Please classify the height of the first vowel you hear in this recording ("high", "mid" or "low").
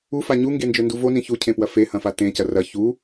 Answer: high